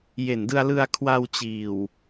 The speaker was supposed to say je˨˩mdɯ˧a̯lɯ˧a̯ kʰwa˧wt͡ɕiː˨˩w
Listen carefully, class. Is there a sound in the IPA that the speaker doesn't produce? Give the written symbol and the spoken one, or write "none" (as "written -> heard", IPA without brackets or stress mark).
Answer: m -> n